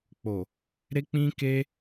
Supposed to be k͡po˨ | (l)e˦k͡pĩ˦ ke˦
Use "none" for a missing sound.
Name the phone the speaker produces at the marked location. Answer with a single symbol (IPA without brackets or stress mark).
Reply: ɾ